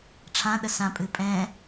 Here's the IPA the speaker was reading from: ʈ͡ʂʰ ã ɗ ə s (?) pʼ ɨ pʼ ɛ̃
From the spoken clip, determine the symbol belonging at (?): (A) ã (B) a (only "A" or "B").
A